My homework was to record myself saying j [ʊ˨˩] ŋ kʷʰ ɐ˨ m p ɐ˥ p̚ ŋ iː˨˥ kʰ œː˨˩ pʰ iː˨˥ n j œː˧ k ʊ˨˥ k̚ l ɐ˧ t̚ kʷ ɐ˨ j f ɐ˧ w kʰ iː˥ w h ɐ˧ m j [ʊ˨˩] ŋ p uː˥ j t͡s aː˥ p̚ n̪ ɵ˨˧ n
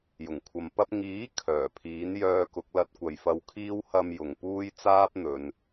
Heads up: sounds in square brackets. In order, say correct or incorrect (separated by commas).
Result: correct, incorrect